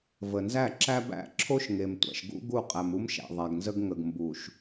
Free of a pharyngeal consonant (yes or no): yes